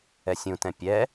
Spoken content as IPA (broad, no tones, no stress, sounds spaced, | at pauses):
ɛ sʲ ũ t ɛ̃ pʲ ɛ